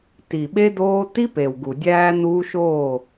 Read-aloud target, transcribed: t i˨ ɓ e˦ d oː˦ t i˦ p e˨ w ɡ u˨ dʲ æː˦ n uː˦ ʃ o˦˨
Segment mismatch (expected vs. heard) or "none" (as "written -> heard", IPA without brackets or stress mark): none